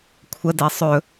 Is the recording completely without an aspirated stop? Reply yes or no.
no